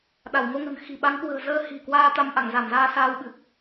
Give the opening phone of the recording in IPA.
ɗ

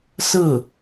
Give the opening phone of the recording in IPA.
s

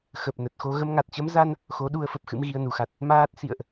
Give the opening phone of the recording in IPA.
x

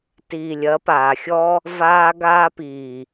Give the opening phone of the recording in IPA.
t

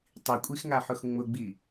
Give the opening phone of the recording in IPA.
tˤ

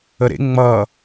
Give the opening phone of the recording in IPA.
ə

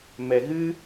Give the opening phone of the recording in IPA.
m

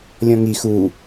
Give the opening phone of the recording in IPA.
lʲ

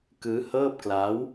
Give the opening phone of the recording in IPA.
k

